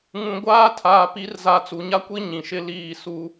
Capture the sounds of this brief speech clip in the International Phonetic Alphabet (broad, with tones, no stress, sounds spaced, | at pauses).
ŋ ũ˨ ɡʷ aː˦ tʰ aː˨ p i˦ r z a˦ t͡s u˨ ɲ a˦ kʷ i˦ ɲ ĩ˨ ʃ ɪ˦ l iː˦˨ s u˦